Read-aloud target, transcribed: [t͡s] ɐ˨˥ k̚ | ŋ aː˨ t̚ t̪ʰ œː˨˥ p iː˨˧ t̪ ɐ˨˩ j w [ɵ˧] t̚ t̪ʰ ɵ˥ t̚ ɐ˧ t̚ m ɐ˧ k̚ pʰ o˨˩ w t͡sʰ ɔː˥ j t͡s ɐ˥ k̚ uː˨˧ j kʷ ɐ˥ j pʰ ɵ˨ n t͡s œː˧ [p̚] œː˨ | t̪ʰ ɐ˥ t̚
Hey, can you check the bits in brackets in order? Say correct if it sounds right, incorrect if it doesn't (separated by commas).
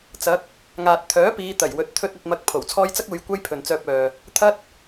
correct, correct, correct